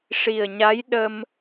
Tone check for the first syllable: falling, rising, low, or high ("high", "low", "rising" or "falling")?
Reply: low